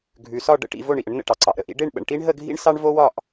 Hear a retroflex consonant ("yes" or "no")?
yes